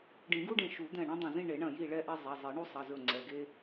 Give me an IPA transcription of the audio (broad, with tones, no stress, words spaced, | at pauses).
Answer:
ɖĩ˨˩˦ɡu˦ɖẽ˧˩ ʃu˨˩˦d̪ɛ̃˧˩ ɳũ˦dˤɐ̃˧˩zĩ˥˨ ɳe˨˩˦ɳɐ̃˧˩ ji˥˨ɭɛ˦ʔɛ˦ zˤɛ˩˧˩zˤe˨˩˦ ɳu˦sˤɐ˩˧˩zɵ˧˩ ŋ͡ǀɛ˩˧˩ɡe˦